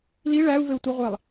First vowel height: high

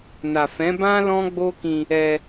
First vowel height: low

